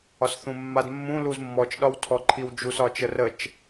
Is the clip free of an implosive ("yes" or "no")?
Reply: no